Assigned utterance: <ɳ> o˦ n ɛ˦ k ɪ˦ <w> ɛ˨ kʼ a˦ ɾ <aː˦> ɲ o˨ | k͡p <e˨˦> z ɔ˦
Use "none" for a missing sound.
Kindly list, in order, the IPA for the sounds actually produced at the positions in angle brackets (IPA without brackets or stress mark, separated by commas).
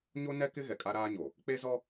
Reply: ɲ, ɣ, aː˦, e˦